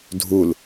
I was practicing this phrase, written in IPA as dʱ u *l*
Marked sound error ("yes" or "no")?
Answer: no